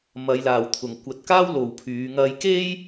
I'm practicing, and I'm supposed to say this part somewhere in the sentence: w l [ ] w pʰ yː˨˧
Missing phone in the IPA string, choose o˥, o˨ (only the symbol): o˨